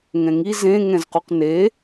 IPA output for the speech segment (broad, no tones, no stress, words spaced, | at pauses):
ŋɛ̃ŋi zẽ ŋɛ̃zquqne